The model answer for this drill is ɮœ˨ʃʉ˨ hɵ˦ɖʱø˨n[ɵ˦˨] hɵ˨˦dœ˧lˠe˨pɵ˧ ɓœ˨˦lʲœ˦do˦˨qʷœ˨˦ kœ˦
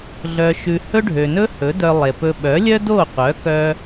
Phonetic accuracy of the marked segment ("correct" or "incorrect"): incorrect